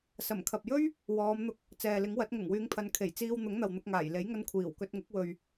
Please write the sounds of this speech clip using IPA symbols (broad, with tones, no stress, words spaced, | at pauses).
sɐ˨˩mkʰɐ˨p̚jɵ˥ɥ | wɔː˨˧mn̪ʊ˧k̚ | t͡sɛː˨lɪ˨˥ŋwɐ˨˥t̚ ŋʊ˨˩ŋwyː˨˧ŋpʰɐ˨nkʰe˨˩j t͡siː˧wn̪ʊ˨˥ŋ n̪ɐ˨wn̪ʊ˧k̚ŋaː˨˩j le˨˥jŋɐ˧n kʷʰiː˨˩wkɵ˧t̚ŋʊ˨˥k̚wɵ˨ɥ